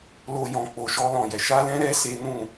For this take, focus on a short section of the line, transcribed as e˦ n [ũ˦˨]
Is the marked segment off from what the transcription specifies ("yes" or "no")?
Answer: no